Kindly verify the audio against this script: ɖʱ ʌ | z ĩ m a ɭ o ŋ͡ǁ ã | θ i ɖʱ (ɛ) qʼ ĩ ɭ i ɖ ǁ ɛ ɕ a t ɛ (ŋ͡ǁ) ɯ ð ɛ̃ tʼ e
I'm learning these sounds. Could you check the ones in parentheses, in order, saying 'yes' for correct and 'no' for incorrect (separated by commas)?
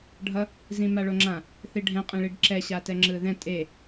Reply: no, yes